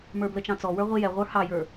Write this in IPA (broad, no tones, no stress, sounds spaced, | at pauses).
m ə˞ b l ə t͡ʃ ɑ̃ t͡s ɔ w ə˞ ʁʷ i j ɛ ʁʷ ə˞ h ɑ j ə˞